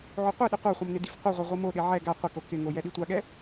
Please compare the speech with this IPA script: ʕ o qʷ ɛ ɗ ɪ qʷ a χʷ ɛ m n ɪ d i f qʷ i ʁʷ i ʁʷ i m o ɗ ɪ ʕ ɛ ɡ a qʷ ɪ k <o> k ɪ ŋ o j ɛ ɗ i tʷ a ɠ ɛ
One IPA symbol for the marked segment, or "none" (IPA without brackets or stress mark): o